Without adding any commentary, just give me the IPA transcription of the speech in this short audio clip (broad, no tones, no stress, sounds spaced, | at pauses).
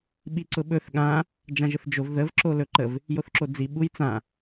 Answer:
ɓ i ǀ ʊ ɓ ɵ θ ɠ ã | d͡ʒ ã ʒ ə θ d͡ʒ o v ð ə v ǁ o l ɵ ǃ ə v | j o θ ǁ o d͡z i ɓ u j t͡s ã